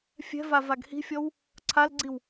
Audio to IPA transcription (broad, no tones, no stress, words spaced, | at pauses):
fʲɛ̤va vaɡhi̤fʲɔw | ǀʰalɡ͡ǀiw